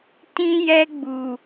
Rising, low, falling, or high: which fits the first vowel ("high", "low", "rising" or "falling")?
high